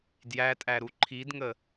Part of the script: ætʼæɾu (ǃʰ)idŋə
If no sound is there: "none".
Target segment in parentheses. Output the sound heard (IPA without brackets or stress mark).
ǃʰ